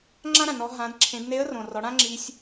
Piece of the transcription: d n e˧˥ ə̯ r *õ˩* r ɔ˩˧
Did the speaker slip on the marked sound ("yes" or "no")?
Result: no